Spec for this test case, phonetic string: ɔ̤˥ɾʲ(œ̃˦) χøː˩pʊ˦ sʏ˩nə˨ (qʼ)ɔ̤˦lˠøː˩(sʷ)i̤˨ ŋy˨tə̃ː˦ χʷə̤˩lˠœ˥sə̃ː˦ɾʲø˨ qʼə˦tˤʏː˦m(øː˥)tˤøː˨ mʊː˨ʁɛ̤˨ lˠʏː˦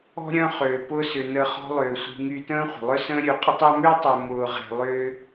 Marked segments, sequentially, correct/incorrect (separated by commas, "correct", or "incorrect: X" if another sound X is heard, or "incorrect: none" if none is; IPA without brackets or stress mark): correct, incorrect: χ, correct, correct